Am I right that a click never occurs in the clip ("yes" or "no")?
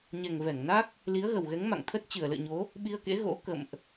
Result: yes